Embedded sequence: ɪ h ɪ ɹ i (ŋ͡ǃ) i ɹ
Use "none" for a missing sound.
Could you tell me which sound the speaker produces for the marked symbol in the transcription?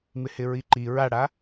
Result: ǃ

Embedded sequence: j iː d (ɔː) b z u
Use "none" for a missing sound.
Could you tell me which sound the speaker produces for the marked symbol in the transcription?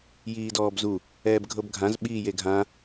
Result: ɔː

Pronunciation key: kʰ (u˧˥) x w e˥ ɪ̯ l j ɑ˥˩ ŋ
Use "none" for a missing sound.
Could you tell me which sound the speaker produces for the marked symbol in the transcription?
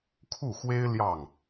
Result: u˥˩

